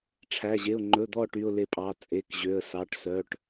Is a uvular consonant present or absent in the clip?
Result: absent